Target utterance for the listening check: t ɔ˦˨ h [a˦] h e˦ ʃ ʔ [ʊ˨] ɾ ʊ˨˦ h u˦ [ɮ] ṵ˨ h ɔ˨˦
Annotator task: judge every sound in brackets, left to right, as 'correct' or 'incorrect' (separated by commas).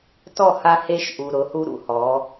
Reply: correct, incorrect, incorrect